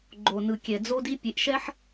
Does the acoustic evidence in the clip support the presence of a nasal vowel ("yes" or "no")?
no